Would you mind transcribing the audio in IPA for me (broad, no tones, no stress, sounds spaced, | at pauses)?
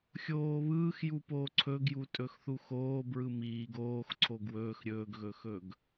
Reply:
xʲ oː β ɯː x j u p oː ǀʰ ɵ ɡ j u tʼ ɵ x θ u x oː b ɹ ɯ m iː ɡ oː x ǀʰ o ɡ w ɵː x ɾʲ ɵː ɡ ɣ ɵ x ɵ ɡ